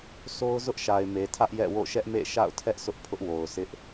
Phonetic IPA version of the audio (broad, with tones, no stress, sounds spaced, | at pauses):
s o˦ ʊ̯ z ʊ˦ ʔ ʃ a˨ ɪ̯ m e˨ tʰ ä˦ ʔ j ɛ̰˦˨ w o̰˦˨ ʃ ɛ˦ ʔ m ḛ˦˨ ʃ a̰˦˨ ʊ̯ tʰ ɛ˦ ʔ s ʊ˦ ʔ pʰ ʊ˦ ʔ w o˨ ʊ̯ s ɪ˦ ʔ